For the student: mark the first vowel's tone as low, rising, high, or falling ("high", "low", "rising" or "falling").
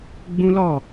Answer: high